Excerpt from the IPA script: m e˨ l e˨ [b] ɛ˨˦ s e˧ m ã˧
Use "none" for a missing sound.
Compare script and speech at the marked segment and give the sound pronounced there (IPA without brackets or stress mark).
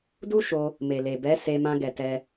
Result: b